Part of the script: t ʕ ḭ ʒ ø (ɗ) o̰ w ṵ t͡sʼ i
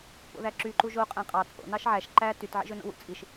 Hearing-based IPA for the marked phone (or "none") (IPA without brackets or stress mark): n